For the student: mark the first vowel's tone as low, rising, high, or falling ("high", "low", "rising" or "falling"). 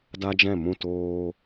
high